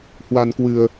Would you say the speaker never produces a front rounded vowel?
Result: yes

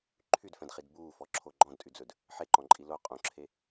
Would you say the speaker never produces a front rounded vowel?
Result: no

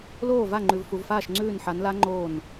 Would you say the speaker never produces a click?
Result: no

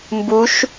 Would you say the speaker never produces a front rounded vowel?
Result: yes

